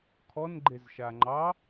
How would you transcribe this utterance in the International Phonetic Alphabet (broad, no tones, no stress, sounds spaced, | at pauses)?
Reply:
kʰ ɔ n ɡ͡ǃ e z ʃ a ŋ͡ǃ ɑ